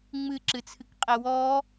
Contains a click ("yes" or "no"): yes